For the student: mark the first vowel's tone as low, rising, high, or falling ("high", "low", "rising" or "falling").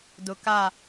low